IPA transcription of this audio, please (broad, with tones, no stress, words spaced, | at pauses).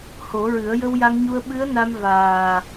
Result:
ho˨˩˦ɹɨ˨˩˦ə̯ jə˧wja˧ŋɲu˧ə̯ ɓɨ˧˥ə̯na˧m vaː˨˩